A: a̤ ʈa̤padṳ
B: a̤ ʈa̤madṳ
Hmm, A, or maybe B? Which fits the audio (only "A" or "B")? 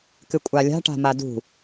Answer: B